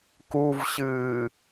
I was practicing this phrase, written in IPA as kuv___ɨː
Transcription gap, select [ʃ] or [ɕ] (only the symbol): ɕ